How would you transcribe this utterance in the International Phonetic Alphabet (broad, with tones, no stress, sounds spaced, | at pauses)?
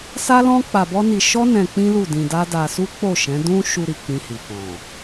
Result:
s a˦ l ɔ̃˦ k͡p a˧ b ɔ˦ n i˧ ʃ ɔ˦ n ɛ̃˧ k͡p ĩ˦ l u˦˨ d ĩ˧ d a˦ d a˧ s u˦ k͡p o˦˨ ʃ ɛ̃˨˦ d ũ˦ ʃ u˧ ɾ i˨ k͡p ĩ˧ h i˨ k ɔ̃˨